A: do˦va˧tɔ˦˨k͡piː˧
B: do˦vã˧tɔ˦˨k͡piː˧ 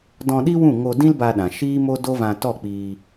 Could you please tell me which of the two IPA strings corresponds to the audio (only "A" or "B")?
B